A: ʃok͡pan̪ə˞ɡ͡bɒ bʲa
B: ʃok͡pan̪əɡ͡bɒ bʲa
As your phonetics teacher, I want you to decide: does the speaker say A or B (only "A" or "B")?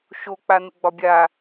B